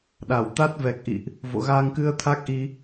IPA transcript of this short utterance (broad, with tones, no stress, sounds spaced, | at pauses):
ɗ a˧˩ w t̪ a˦˥ t̚ v ɛ˨˩ k̚ ʔ ḭ˧˨ ʔ | v o̰˧˨ ɣ aː˧ ŋ k ɨ˧ ə̯ t̪ʰ a˦˥ k̚ ʔ i˧